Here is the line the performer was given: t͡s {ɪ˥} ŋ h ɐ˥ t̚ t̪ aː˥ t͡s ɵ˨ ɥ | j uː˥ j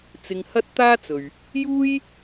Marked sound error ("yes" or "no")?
yes